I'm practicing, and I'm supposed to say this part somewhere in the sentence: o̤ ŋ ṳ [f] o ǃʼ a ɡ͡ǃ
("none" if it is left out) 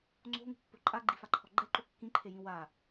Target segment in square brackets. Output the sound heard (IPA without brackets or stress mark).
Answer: pː